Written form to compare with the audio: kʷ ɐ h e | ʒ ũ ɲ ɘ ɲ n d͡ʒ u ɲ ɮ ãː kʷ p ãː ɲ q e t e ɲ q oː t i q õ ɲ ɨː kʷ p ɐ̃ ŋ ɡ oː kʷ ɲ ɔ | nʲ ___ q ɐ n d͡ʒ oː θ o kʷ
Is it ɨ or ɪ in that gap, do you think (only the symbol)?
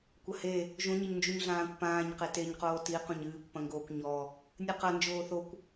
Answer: ɨ